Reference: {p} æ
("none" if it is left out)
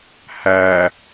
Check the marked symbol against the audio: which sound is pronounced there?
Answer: h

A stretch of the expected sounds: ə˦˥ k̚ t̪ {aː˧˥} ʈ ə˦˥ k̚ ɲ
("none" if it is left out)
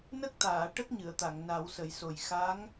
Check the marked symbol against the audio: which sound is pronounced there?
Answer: aː˨˩˨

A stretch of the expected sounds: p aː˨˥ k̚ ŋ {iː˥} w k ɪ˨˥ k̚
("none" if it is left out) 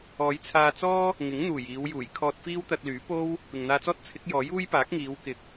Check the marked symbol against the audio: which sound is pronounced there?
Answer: iː˨˧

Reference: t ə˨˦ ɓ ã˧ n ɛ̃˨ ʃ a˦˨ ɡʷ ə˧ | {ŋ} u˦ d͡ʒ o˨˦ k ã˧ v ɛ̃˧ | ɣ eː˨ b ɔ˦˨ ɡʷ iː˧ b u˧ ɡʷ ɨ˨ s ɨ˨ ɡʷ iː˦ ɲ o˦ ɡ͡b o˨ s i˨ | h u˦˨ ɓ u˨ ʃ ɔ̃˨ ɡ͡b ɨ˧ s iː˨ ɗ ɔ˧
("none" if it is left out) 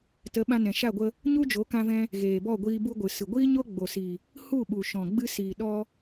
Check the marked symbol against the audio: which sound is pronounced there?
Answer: ɲ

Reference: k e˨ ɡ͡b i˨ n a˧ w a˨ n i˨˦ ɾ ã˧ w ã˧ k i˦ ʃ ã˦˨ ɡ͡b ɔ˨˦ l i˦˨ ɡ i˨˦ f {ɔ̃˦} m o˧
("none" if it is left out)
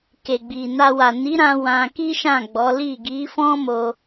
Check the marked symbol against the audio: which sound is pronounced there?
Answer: ɔ̃˦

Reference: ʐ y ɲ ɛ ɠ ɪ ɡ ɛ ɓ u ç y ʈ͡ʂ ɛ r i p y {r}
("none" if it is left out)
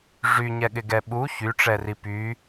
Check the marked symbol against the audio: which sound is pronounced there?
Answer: none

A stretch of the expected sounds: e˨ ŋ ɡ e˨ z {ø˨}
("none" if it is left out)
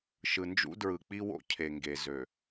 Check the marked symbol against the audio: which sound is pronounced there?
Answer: ø˨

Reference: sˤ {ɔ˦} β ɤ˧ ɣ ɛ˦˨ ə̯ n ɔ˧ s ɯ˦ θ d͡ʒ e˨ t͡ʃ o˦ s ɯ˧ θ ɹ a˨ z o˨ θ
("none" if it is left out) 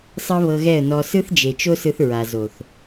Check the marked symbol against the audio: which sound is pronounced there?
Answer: ɤ˦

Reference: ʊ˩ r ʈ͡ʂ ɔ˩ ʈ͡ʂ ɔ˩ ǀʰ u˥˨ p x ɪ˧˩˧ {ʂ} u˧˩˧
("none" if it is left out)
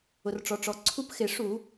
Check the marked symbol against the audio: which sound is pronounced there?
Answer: ʂ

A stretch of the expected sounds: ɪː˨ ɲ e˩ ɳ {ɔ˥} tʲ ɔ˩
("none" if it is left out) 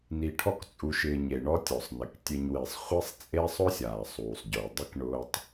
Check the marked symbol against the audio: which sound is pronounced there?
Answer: ɔ˦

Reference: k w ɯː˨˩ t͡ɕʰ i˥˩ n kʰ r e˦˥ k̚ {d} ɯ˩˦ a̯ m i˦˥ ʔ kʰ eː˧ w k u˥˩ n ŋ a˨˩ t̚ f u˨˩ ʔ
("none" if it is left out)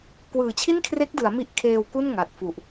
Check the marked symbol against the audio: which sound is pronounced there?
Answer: d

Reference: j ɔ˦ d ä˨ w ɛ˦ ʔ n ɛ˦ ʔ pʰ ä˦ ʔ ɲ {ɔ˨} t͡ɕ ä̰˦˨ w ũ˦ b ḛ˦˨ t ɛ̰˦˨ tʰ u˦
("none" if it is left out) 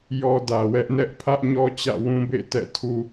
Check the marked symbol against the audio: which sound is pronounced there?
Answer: ɔ˦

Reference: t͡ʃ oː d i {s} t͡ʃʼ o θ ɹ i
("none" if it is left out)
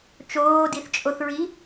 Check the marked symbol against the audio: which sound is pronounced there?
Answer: θ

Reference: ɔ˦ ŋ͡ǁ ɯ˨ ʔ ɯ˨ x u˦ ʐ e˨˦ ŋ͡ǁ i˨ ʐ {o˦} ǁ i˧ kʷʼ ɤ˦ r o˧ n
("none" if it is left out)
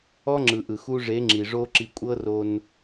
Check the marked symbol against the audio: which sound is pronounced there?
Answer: o˦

